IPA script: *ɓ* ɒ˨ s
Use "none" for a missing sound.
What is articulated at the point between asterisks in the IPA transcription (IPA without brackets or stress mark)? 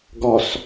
ɡ